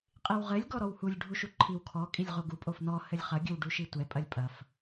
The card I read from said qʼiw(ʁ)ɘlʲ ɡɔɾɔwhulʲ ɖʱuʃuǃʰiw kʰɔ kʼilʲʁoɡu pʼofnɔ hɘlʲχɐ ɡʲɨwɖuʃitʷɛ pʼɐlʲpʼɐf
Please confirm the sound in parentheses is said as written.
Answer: yes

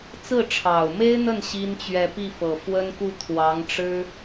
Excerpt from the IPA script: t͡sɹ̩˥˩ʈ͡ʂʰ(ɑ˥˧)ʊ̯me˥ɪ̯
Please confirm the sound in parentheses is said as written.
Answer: no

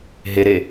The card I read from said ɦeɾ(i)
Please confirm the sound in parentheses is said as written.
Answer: no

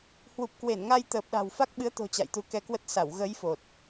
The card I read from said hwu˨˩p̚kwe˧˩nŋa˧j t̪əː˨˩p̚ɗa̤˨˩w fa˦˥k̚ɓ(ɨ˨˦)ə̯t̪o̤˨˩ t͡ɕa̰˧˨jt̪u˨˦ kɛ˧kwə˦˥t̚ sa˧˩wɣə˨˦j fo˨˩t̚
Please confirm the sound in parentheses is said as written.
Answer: yes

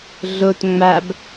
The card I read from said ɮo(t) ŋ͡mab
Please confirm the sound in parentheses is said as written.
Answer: yes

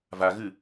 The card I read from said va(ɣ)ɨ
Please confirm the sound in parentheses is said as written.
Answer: yes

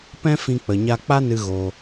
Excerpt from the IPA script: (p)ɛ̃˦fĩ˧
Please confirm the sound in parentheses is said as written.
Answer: yes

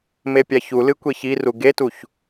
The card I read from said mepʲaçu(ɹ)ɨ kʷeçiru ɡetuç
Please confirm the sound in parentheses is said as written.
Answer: no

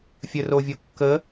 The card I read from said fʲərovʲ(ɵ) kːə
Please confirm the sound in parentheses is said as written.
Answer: no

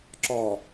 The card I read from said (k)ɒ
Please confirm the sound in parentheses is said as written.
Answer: no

